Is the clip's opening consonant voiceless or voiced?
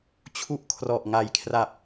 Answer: voiceless